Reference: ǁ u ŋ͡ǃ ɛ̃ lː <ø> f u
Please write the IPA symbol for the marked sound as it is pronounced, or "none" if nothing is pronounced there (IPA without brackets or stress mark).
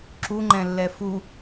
ɛ